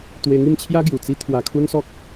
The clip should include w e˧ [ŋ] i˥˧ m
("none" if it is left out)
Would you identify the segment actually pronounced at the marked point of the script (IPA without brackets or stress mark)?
ŋ